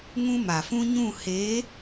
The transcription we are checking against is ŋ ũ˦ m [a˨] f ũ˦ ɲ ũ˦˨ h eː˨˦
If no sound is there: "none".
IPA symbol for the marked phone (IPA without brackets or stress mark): a˨